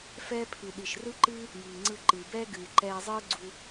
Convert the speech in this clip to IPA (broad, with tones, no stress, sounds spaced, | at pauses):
f ɛː˦ pʰ ɨ˨ ɗ i˨ ʃ r ɯ˦ ǃ ɨː˦ | j iː˨ ŋ͡ǀ ɯ˧ ǃ ɨː˨ b ɛː˦ ɡ ɨː˨ ǃ ɛː˧ zˤ ɨː˦ ɡ͡ǀ u˧